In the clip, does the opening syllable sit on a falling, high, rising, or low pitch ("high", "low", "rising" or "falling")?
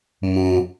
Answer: low